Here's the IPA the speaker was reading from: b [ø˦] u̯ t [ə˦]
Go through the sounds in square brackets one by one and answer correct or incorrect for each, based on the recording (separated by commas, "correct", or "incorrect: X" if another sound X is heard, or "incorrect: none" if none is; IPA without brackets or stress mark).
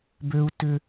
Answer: correct, incorrect: ʏ˦